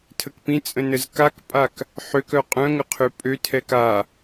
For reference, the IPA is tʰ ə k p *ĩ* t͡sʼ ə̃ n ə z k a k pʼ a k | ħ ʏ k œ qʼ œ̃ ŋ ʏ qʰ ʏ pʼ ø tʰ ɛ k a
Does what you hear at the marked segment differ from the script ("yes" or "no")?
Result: no